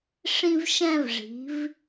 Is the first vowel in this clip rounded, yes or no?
no